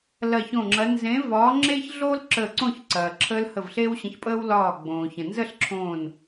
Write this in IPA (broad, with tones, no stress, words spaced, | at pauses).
lɐ˧˩çõ˧˩ŋ͡ǁɐ˨˦ nzẽ˨˦ vɒː˨˦ŋ͡ǁe˦çɮo˦l ǁə˧˩ ǀõ˥˨çǀɐː˩ǁʰəː˦l hə˧˩vɬeː˦wɕə̃˨˦çpʼəː˦w lɒː˧˩ ɡ͡bõː˩çə̃˩nzə˥˨ɬǁʰõː˧˩n